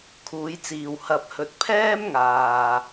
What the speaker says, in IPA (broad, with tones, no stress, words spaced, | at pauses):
kʰuː˨˧jt͡siː˨w hɐ˧p̚hɵ˧t̚ pʰɛː˥mŋaː˨